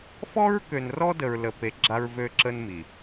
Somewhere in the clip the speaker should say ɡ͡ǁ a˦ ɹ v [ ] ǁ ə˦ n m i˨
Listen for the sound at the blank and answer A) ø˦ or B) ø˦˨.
A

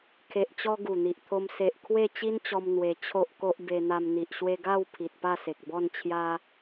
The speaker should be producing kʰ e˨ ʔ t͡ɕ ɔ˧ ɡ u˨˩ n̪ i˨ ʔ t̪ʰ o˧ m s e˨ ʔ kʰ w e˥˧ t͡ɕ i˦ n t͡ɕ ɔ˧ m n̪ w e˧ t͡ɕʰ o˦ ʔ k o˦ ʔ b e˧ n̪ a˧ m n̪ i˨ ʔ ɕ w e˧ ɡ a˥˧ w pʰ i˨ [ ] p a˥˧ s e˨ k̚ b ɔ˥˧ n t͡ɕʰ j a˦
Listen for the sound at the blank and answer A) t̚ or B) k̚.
A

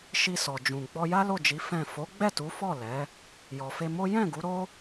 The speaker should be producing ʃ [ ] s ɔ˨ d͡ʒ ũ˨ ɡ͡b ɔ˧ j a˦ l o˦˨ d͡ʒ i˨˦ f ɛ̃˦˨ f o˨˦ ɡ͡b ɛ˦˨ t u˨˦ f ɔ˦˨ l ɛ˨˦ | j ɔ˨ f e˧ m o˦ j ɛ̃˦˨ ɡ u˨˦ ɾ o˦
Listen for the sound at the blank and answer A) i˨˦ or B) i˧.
B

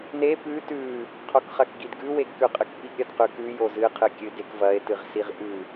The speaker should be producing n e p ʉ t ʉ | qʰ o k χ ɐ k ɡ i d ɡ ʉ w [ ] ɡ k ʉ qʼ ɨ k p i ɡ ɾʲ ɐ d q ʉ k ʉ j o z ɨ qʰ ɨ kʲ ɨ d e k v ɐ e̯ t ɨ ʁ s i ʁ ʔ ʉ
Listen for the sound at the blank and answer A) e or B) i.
A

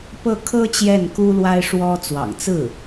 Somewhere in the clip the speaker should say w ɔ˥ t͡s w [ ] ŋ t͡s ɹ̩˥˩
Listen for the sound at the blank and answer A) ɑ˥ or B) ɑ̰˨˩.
B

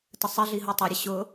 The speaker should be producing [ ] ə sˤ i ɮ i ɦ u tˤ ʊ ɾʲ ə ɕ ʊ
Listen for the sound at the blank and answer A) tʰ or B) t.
B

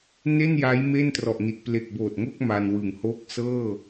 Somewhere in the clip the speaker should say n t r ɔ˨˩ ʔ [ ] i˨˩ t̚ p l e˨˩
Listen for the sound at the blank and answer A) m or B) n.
B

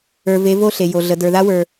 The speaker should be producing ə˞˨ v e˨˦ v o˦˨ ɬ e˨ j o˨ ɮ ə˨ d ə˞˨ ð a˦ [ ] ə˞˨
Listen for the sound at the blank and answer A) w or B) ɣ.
A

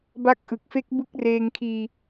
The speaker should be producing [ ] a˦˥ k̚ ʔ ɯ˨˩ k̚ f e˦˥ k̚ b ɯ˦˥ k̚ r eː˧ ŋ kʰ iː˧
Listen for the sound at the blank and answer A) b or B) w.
A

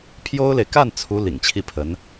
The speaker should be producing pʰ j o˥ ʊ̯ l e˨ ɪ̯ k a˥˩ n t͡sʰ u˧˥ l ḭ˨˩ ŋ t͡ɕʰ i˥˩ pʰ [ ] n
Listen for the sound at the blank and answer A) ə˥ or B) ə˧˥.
B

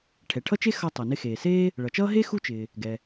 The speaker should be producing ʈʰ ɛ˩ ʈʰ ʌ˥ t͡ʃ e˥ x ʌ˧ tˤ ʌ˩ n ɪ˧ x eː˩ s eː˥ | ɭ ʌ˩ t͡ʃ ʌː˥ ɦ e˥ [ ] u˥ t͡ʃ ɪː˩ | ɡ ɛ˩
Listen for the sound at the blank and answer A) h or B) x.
B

